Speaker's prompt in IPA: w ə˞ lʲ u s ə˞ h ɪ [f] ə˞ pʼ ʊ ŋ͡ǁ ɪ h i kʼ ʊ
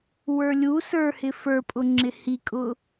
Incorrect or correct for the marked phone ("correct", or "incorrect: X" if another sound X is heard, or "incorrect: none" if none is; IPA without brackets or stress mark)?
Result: correct